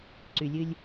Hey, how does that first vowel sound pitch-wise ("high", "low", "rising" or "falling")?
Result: low